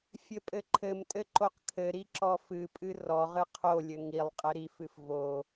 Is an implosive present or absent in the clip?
absent